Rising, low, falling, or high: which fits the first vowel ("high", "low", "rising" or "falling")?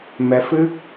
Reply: rising